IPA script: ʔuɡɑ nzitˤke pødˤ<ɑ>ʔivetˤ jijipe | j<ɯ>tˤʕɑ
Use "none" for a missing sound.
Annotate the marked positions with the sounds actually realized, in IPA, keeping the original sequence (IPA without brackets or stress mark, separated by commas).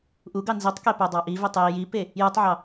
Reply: ɑ, ɯ